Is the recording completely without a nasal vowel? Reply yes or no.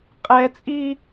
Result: yes